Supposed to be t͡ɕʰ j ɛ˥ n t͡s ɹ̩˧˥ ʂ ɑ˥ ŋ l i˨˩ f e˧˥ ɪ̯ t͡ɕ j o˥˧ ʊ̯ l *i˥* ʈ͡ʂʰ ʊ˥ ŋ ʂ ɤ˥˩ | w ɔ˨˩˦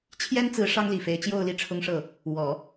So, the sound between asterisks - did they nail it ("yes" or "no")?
no